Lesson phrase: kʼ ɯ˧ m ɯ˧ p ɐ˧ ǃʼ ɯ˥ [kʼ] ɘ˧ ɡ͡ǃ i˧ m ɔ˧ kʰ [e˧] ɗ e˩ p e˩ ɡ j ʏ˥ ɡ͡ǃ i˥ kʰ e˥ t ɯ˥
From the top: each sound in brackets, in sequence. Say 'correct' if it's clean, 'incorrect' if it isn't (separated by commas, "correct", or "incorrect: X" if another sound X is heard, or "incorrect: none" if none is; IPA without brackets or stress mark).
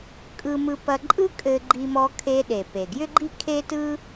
correct, correct